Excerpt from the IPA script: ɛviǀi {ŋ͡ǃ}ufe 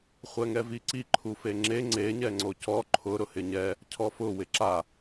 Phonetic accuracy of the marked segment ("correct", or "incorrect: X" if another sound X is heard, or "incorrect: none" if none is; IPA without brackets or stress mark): incorrect: ǃʰ